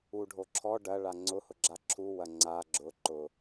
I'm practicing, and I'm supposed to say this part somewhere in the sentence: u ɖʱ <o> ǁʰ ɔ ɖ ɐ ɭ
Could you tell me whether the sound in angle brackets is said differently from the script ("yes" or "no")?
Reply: no